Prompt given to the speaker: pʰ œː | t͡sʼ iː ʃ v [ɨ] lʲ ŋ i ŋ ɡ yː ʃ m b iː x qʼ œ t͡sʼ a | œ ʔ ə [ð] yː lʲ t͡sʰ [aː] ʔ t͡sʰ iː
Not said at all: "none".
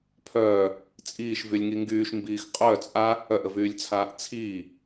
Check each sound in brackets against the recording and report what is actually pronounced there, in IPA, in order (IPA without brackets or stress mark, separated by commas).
y, v, aː